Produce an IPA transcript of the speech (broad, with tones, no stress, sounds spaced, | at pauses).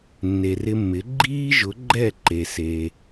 nː e˩ r ɪ˧ mː ɪ˩˥ ɡ͡ǃ iː˥ ʒ ʊ˩˥ ɡ͡ǃ ɛ˥˩ ǃ e˩ s e˩